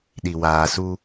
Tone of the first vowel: low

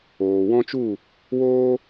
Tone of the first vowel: low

